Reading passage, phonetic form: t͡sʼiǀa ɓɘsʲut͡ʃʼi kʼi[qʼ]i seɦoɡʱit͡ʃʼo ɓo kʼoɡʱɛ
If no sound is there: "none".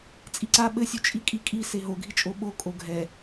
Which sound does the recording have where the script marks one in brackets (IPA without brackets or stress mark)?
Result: kʼ